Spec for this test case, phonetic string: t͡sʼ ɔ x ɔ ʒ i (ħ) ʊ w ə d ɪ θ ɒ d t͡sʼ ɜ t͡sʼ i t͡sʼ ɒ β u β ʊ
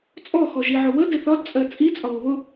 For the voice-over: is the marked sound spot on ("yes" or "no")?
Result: no